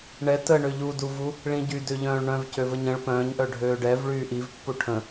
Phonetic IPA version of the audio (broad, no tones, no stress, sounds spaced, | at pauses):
ɳ ɛ t ə ɳ ø ʎ u d u v u | ɭ ĩ ɟ y d ø ʎ œ̃ː ɭ ɳ œ̃ v c ø v ə ɲ ə̃ ɭ p œ̃ː ɲ ʔ œ ɖʱ øː ɖ ɛ v ɭ yː ʔ i v pː u ʈʰ ə̃